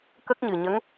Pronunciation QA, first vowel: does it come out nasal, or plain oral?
oral